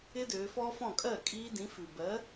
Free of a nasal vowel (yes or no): no